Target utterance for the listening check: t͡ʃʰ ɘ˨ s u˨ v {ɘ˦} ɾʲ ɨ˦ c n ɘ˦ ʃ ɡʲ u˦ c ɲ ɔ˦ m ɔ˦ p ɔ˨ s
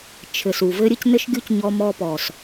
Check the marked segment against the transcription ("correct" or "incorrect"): correct